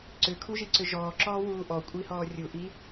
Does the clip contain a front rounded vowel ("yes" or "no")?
yes